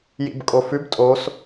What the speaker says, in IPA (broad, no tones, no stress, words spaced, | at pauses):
jḭbkʼofʉb tʼos